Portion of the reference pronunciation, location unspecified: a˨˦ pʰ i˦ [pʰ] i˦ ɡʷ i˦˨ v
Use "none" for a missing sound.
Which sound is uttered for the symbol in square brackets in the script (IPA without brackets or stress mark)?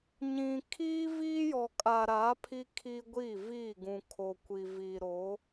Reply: kʰ